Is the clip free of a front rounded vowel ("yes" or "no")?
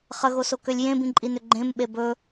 no